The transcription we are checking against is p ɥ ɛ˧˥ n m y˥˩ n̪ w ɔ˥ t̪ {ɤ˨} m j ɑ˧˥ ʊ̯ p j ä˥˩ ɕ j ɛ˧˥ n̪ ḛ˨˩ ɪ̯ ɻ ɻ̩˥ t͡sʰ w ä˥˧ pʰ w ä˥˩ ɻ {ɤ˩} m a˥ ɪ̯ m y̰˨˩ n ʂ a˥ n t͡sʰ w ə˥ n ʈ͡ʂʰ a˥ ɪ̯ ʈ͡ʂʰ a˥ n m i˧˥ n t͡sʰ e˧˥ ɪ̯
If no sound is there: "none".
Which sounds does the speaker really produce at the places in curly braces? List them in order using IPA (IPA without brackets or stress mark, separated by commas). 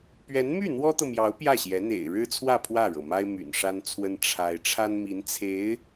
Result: ɤ˨, ɤ˩